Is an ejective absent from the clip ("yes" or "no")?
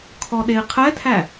yes